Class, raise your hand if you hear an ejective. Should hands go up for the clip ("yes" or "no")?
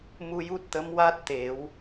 no